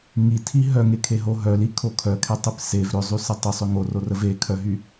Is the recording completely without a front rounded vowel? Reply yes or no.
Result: no